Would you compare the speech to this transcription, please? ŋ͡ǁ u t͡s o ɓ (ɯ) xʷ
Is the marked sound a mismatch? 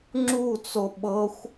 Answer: yes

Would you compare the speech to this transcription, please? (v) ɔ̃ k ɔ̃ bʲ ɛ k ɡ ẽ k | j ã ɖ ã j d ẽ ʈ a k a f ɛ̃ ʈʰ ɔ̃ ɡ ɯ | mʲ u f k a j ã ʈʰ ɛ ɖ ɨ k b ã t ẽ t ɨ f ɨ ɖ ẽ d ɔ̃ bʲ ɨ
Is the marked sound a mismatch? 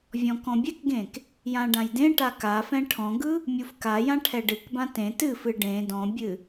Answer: yes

